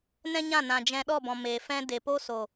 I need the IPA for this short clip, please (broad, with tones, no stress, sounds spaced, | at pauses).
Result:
n ɛ̃˦ ɲ ã˦˨ n ã˨ d͡ʒ ɛ̃˧ ɗ ɔ˦˨ b ɔ̃˨ m eː˨ f ɛ̃˦ d e˨ p o˦ s o˨